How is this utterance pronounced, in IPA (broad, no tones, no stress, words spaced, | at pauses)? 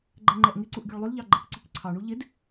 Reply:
ɡ͡ǃɛŋ͡ǃɛʔŋɪǀuʔ ɡʲuɭlˠʏlʎɑ ɡ͡ǃɛkǀikǀʰɑɳu ʎɪd